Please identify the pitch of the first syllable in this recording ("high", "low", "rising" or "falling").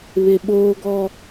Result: high